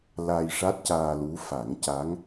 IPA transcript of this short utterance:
l a˧ j ʂ a˦˥ t̚ c aː˧ l u˧˥ f a˨˩˦ ŋ c a˧˥ ŋ

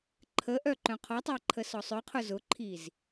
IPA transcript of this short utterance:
ǃʰ ə ʔ œ ǃ œ̃ qʰ ɔ tˤ a ǃʰ ə s ɔ sˤ œ qʰ ʊ z ʊ ǃʰ i z

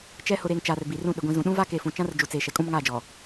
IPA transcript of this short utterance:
t͡ʃ ɛ˨ h ʊ˨ ɾ eː˨ ŋ t͡ʃ aː˨ r b iː˨ r ũ˦˨ ɗ ɪ˨ ɡʷ ĩ˨ z ũ˨ ɗ ũ˦ v a˦ k e˨ f ũ˨ t͡ʃ ã˦ r d͡ʒ u˨ t͡s eː˨ ʃ ɛ˨ kʼ ũ˦ m ŋ aː˦˨ d͡ʒ ɔ˨

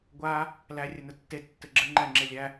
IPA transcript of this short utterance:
ɡʷ a | l æ rʲ ə n ə tː e tː ɘ ɡ͡ǁ ɘ ŋ͡ǃ æ ŋ͡ǁ e lʲ æ

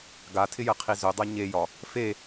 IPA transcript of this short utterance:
ɡ a tʰ ɪ j ə qʰ i z ɵ dˤ ɜ ɲ e j ɒ | f e

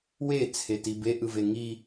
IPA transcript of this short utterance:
w e t͡sʰ e t i b e ʔ ɯ v e ŋ i

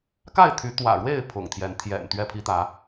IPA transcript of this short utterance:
k a˥˨ ɪ̯ t̪ʰ y˨˦ t̪ w ä̰˨˩ ɻ w e˥˨ ɪ̯ pʰ ʊ̰˨˩ ŋ t̪ʰ j ɛ˨˦ n t̪ʰ j ɛ̰˨˩ n t̪ ɥ ɛ˥˨ pʰ i˦ t̪ ä˨˦

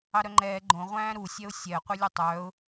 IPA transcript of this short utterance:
ɑ ɾ œ ŋ͡ǃ ɛː ɡ͡ǃ õ ʁʷ æ̃ː ɾ u sʲ ɛ ʊ̯ sʲ ɛ ə̯ qʷ œ lʲ ʉ tˤ œː ʊ̯

